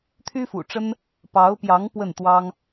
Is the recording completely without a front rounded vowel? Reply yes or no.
no